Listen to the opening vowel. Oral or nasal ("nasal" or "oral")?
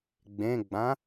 nasal